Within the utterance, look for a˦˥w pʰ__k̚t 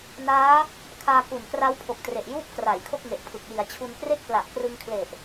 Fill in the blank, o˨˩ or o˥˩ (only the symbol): o˨˩